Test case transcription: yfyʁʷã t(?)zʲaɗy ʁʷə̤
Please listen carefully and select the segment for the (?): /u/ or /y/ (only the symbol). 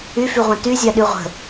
y